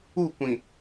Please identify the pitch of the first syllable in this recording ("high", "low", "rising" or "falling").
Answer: falling